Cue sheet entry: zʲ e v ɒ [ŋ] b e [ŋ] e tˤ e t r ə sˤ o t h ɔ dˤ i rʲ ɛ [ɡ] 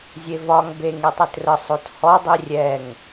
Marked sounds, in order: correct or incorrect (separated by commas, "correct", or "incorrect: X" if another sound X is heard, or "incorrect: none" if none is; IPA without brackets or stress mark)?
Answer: correct, correct, incorrect: ŋ